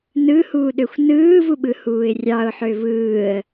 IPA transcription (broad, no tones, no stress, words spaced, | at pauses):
nɯhuːɗøxʷ nɯːvuɓɯhuːɪ̯ rʲɑʊ̯ħø vɯːə̯